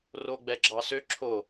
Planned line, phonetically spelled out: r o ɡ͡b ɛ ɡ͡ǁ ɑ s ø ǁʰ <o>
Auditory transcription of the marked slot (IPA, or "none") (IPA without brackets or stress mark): o